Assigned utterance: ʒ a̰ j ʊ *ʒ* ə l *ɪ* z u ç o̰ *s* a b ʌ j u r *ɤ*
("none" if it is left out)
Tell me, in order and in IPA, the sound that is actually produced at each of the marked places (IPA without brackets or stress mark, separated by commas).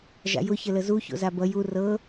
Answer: ç, ə, z, ɤ